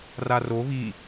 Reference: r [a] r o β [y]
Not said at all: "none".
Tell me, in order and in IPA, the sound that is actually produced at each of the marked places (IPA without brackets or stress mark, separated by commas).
a, i